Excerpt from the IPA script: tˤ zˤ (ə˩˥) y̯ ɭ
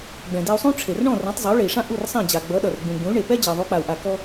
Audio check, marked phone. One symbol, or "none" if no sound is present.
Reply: ʌ˩˥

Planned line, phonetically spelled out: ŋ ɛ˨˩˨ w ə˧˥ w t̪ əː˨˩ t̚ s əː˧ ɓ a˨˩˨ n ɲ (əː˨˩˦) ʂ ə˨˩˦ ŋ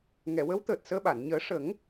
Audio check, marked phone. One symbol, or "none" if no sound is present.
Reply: əː˨˩˦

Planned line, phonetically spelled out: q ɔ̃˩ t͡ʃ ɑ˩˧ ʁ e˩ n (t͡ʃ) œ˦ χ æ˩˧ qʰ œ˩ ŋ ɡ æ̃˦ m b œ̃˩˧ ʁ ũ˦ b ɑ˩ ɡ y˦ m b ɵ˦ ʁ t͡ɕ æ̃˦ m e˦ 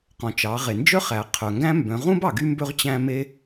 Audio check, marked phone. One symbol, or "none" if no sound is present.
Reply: d͡ʒ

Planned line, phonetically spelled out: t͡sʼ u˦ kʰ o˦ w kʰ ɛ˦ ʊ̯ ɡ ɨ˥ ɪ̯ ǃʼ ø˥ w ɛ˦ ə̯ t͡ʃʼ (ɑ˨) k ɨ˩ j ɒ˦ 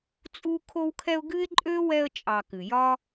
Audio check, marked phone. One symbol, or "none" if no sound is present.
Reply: ɑ˨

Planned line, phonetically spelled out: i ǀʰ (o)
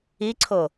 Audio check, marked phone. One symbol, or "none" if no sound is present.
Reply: o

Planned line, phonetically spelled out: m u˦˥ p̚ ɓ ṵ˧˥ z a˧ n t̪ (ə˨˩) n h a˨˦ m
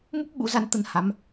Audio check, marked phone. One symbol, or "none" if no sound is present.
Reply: ə˨˦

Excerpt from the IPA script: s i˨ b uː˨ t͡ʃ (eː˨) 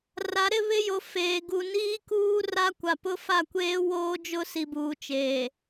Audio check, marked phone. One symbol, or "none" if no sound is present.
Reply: eː˨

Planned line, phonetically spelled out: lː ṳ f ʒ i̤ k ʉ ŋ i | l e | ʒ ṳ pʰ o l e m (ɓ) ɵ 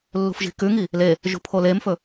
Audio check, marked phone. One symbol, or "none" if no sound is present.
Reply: f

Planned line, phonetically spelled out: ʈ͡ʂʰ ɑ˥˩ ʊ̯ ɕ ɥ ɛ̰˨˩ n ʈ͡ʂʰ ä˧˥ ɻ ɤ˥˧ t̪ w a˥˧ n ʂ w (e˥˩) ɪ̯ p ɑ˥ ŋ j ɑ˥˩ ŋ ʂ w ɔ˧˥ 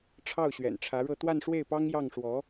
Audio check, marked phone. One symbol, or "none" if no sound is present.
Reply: e˥˩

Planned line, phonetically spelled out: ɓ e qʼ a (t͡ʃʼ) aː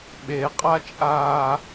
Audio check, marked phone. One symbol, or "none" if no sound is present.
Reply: t͡ʃʼ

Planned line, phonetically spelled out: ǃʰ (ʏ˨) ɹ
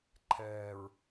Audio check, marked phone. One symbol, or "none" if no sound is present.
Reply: ɛ˨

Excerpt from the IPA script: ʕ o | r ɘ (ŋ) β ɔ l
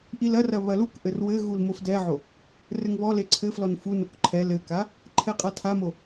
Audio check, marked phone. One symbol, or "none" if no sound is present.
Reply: ŋ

